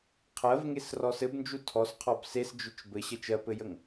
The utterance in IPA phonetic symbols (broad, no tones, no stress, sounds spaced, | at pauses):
qʰ ɜ v ŋ e s r ɔ s ɘ b n d͡ʒ u tʰ ɔ s qʰ ɔ b s e s d͡ʒ ʏ t͡ʃ b ɘ ɕ ə t͡ʃ ɜ p ɘ j ə ŋ